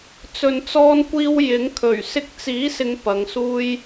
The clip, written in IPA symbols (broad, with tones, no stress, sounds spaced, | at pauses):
t͡s ɵ˨ n t͡s ɔː˧ n kʷ iː˧ w j ɪ˨˥ ŋ kʰ ɵ˨˩ ɥ s ɪ˧ k̚ t͡s iː˨˥ s ɪ˨˧ ŋ p ɐ˨˧ ŋ s uː˥ j